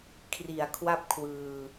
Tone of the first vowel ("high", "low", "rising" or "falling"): low